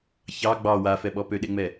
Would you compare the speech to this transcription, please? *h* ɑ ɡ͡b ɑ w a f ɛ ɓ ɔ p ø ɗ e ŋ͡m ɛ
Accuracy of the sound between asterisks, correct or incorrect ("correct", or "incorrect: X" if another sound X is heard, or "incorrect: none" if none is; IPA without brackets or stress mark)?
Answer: incorrect: ç